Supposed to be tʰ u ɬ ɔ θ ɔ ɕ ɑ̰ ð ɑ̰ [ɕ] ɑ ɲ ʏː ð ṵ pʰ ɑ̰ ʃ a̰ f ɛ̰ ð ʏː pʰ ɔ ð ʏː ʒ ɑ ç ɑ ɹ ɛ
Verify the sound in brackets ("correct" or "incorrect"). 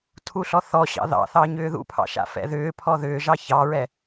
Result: incorrect